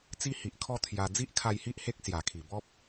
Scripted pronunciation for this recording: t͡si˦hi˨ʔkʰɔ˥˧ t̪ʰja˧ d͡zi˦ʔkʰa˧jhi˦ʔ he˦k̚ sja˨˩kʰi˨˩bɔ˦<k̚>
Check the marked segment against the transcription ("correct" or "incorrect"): incorrect